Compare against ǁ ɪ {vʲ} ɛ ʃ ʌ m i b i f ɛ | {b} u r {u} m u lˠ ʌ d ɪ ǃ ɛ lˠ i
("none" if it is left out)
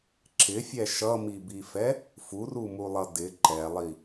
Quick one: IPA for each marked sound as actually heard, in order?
fʲ, f, u

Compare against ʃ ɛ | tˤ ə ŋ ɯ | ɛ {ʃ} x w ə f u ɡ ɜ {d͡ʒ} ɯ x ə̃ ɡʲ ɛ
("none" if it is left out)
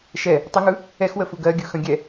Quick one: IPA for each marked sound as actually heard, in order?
none, ɡʲ

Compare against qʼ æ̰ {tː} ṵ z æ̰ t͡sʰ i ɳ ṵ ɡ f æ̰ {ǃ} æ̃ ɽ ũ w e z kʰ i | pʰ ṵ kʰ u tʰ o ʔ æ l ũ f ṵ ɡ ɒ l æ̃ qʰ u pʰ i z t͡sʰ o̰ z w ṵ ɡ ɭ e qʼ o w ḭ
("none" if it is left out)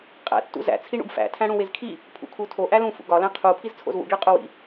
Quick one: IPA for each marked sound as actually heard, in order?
tː, tʰ

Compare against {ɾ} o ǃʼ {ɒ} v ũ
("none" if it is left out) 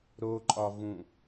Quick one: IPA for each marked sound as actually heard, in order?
ɾ, ɒ

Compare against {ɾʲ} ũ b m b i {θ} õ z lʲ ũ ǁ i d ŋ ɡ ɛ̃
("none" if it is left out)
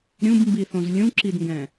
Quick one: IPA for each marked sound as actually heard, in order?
ɾʲ, θ

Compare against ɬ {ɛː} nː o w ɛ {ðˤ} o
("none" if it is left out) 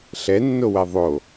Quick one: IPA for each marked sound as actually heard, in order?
ɛ, ðˤ

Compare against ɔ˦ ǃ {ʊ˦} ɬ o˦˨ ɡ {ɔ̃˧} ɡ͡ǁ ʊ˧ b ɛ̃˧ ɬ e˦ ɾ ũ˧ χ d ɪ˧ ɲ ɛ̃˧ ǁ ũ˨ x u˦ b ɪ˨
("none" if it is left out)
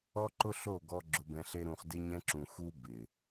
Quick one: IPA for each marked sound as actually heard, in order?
ʊ˦, ɔ˧

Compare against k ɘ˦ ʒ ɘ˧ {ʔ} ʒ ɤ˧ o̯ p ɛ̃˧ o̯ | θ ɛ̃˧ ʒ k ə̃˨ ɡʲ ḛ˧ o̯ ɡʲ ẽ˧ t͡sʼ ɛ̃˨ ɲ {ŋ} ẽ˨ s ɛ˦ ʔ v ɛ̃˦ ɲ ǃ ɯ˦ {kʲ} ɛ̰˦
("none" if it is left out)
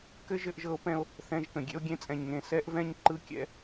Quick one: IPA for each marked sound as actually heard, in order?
ʔ, ŋ, kʲ

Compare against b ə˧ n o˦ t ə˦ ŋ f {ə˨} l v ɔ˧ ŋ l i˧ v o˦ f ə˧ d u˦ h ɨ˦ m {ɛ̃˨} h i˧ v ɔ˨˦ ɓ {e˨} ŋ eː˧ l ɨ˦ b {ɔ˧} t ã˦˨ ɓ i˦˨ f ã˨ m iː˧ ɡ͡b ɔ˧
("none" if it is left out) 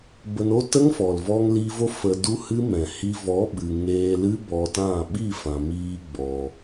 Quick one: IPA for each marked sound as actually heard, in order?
ɔ˨, ɛ̃˨, ɨ˨, ɔ˧

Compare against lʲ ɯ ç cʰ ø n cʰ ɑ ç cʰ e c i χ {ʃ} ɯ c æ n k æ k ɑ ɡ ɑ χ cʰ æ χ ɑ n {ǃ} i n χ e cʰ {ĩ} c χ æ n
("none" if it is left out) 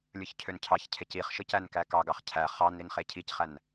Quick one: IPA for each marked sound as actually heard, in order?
ʃ, ɾ, i

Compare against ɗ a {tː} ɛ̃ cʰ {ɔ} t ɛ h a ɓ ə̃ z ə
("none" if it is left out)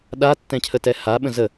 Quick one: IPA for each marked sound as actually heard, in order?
tː, ə

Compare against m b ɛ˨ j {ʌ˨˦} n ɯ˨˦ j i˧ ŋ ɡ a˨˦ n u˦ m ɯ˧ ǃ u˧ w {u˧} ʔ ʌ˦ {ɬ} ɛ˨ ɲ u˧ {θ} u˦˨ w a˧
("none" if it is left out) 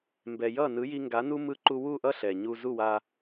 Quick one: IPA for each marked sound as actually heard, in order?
ʌ˦˨, u˦˨, ɬ, z

